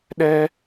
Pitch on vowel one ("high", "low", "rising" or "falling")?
high